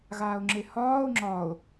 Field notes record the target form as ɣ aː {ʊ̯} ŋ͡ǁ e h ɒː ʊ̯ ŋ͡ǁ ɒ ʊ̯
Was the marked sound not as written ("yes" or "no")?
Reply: no